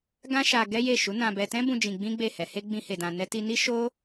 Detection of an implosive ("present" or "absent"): absent